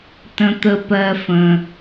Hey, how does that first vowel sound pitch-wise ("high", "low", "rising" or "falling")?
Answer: low